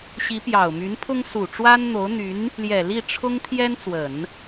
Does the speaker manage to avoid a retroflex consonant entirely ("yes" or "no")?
no